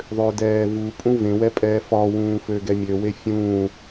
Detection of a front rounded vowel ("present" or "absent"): present